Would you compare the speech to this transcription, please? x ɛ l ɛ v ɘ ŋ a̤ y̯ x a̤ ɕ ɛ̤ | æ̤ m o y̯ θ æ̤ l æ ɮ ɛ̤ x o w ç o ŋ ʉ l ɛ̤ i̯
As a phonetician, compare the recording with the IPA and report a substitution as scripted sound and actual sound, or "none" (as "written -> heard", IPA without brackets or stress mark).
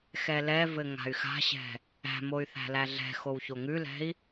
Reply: none